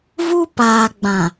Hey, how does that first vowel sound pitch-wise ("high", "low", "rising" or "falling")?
high